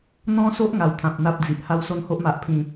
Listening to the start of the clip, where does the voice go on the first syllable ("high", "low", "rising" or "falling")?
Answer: high